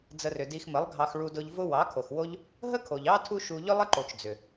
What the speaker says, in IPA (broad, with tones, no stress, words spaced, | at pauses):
d͡zə˧rʏ˨ di˧xmə˨˦lˠɡʱɑ˧x ɭu˧dʊ˧ʎ vʊ˦ wɑ˨˦kʰo˨xwo˦ʎ | ɦə˦kʰo˨ʎɑ˦ tʰu˦ʃu˧ ʎʏ˦lˠə˦ǃo˨t͡ʃ d͡zʏ˨